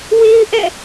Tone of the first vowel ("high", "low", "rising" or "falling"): high